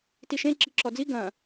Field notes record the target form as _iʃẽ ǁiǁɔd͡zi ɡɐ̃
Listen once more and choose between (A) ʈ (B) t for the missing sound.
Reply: B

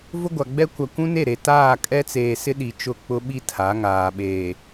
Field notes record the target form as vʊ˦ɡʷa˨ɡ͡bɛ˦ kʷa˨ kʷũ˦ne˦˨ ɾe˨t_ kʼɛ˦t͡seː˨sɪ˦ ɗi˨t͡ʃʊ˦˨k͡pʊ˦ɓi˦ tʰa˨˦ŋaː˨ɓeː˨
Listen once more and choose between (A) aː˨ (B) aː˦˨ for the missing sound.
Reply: B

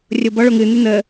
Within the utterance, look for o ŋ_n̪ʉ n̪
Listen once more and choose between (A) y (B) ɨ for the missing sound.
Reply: B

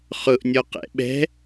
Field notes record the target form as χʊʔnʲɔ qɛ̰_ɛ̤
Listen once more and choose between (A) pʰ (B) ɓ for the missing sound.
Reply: B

